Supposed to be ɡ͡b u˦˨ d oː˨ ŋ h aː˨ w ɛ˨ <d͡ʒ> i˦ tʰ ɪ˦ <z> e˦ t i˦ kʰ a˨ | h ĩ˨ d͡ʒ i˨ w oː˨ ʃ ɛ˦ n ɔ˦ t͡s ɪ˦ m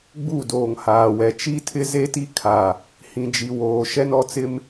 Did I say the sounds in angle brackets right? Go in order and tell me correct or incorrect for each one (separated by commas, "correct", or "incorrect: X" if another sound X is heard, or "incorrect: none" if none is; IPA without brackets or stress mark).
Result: incorrect: t͡ʃ, correct